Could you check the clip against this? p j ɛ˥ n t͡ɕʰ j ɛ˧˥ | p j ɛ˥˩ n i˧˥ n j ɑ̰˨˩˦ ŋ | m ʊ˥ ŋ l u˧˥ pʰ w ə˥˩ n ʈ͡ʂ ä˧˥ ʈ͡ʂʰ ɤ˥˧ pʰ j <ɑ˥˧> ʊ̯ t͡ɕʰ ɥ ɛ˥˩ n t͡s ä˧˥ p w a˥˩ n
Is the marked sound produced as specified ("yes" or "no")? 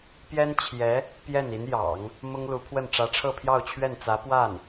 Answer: yes